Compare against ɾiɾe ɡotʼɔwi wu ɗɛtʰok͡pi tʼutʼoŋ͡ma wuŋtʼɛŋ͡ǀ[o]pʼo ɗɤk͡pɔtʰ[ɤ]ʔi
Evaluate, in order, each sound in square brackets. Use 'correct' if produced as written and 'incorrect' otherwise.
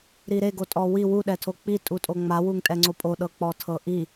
correct, correct

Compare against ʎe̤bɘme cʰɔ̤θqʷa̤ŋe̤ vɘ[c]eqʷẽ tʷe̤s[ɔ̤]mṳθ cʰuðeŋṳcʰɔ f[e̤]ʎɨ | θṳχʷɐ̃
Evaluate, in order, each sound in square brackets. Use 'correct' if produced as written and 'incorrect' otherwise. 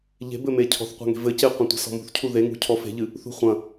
correct, correct, correct

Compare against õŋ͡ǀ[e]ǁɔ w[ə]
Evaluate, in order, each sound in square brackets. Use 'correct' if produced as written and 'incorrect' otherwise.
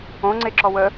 correct, correct

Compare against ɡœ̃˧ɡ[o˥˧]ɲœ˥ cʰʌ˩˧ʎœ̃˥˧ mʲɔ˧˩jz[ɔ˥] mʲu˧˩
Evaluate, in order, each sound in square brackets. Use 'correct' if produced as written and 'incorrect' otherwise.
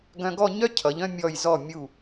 incorrect: ɔ˥˧, incorrect: ɔ˧˩

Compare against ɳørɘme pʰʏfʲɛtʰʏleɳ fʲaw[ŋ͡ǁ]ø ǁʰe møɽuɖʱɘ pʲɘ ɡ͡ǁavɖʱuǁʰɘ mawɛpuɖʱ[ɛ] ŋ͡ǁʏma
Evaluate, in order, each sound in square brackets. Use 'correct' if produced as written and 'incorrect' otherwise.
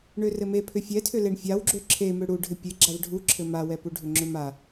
incorrect: ɡ͡ǁ, incorrect: ʏ

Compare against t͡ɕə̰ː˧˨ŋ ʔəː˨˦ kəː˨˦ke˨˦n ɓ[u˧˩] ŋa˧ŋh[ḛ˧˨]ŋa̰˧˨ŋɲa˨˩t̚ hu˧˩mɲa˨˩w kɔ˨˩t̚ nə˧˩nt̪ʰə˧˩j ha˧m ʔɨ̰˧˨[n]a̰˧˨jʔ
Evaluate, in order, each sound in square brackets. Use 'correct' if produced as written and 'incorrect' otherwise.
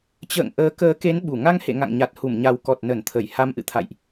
correct, correct, incorrect: t̪ʰ

